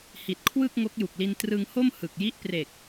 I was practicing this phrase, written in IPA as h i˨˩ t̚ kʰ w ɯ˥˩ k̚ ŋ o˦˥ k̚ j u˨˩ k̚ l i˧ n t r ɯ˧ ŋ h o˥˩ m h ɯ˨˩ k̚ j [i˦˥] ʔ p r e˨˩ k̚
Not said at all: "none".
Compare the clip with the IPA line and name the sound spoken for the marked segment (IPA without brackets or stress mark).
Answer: i˦˥